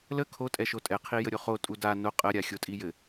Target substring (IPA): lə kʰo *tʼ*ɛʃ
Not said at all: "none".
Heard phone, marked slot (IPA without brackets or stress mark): tʼ